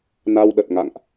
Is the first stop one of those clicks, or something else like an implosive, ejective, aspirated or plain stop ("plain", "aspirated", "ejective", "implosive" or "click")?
implosive